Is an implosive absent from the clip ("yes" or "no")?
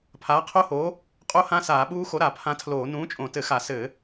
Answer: no